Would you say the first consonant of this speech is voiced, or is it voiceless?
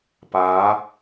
voiceless